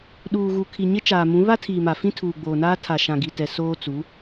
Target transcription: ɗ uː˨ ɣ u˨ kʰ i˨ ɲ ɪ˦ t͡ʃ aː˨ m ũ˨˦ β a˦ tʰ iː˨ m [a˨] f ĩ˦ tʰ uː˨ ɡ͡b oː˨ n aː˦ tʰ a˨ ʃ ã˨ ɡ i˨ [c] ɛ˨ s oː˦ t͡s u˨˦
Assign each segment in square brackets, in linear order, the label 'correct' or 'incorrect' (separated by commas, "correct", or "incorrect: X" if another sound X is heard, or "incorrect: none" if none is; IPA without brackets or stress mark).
correct, incorrect: t